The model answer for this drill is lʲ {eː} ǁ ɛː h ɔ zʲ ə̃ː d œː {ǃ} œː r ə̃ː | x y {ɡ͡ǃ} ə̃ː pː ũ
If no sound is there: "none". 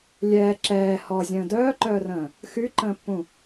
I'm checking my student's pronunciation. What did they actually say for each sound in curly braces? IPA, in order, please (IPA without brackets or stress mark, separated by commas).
ɛː, ǃ, ǃ